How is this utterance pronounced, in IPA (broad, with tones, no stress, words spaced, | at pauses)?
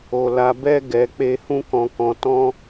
o˨ la˨bɛ˧ ɡɛ˨k͡pe˧ hũ˦kɔ̃˧kɔ̃˧ tɔ̃˦